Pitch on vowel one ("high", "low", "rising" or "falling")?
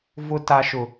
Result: high